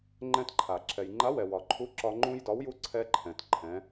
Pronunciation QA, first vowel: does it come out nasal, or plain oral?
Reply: nasal